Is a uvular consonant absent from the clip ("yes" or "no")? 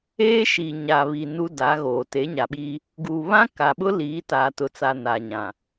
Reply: yes